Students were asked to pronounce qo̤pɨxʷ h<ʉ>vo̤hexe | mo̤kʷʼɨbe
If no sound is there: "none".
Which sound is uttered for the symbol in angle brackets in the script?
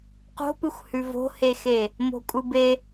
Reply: ʉ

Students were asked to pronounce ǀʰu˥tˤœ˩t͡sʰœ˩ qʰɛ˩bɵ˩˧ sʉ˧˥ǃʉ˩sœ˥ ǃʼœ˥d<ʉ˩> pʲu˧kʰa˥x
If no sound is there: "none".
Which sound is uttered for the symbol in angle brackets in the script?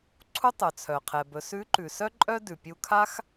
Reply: ʉ˩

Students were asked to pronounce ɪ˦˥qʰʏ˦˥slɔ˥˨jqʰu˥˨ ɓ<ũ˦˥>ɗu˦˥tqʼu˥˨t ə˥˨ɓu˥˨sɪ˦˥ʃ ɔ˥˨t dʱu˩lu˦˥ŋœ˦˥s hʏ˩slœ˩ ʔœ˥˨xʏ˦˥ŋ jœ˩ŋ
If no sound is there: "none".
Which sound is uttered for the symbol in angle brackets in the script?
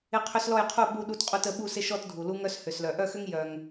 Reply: u˦˥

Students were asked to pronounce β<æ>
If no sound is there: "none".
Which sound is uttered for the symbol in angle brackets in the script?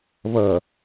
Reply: ɐ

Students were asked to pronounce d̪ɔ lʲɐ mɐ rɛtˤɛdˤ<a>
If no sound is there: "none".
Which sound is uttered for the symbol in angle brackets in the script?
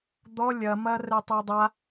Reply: a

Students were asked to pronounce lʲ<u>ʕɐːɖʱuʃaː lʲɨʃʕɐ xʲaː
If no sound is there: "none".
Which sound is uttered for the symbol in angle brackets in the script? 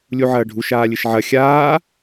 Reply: u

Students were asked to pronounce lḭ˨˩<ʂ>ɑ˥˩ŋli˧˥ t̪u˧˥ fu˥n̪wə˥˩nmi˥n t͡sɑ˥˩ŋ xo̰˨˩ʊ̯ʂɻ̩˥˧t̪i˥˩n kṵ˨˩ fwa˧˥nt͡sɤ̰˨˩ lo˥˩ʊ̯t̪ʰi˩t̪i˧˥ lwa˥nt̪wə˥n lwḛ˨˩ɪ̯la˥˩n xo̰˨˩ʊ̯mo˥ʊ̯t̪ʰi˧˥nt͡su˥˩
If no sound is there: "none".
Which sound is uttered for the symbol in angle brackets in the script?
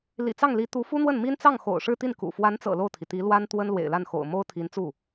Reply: t͡s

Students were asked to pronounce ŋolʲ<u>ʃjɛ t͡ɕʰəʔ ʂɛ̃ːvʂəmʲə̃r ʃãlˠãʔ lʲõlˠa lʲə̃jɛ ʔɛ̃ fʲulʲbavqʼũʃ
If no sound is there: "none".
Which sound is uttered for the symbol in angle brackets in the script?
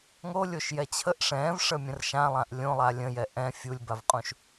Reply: o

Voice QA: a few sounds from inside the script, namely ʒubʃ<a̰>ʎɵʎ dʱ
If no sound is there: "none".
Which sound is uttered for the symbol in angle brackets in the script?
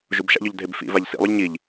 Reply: a̰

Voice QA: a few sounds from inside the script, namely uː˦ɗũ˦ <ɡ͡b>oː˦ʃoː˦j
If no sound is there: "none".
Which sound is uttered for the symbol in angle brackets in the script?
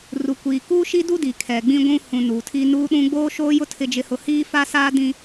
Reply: ɡ͡b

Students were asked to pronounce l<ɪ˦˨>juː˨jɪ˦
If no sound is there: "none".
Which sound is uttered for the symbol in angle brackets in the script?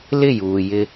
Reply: ɪ˦˨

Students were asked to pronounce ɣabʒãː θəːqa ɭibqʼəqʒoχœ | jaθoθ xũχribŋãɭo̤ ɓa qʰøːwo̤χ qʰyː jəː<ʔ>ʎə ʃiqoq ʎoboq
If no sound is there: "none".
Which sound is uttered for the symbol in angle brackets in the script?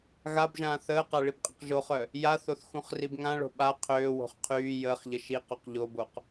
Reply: χ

